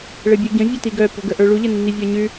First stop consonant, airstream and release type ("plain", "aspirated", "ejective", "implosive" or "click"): plain